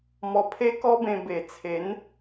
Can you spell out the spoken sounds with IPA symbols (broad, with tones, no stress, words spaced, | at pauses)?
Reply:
mɔ˧pʰe˦kɔ˦bẽ˧ be˨˩t͡sʰe˨˦n